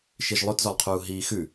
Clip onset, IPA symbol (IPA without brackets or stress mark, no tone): ʃ